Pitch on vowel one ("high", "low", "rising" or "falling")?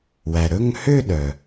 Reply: low